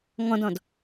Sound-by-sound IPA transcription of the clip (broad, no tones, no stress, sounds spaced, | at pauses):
ŋ ɔ̃ d ɔ̃ d